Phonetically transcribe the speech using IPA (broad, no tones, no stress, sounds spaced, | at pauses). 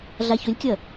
ɮ a ç ɵ lʲ kʲ ɐ